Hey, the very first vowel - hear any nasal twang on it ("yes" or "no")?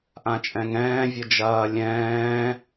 yes